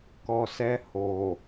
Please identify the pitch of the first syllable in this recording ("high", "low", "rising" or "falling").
low